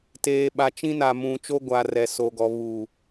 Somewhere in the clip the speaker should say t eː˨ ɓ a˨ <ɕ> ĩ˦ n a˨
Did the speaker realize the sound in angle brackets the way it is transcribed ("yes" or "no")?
no